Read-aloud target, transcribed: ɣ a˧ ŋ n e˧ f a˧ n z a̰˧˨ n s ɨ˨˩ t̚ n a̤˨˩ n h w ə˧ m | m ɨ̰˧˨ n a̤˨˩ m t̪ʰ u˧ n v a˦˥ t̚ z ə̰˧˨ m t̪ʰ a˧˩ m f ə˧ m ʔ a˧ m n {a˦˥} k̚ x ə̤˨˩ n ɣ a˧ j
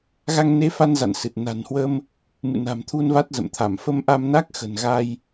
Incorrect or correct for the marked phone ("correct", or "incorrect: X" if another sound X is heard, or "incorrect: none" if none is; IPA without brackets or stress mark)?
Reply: correct